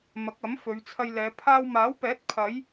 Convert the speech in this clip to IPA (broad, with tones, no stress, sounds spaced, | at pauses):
m ɐ˨˥ k̚ ɐ˨˥ m f ɵ˨˧ ɥ t͡sʰ ɐ˧ j l ɛː˨˧ pʰ aː˧ w m aː˨˥ w p ɛː˨˥ t̚ pʰ ɐ˨˧ j